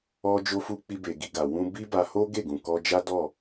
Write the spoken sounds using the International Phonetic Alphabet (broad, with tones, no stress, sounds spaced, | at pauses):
ɔ˦ d͡ʒ o˦ f u˦ k͡p i˦ b e˧ ɡ i˧ ɡ a˨ w ũ˧ b i˦ b a˧ h o˦ ɡ e˦˨ ɡ ũ˨ k ɔ˧ d͡ʒ a˦ d ɔ˦˨